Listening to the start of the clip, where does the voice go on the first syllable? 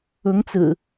rising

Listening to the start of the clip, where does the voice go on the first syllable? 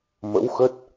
rising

